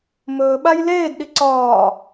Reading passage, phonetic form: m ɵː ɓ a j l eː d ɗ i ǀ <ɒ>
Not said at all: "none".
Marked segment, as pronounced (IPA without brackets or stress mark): ɒː